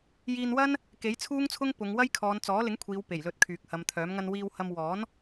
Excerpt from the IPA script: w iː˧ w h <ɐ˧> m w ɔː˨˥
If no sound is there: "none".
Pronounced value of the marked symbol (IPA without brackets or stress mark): ɐ˧